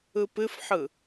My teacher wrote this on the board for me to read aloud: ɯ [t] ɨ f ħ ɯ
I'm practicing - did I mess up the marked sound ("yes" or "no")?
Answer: yes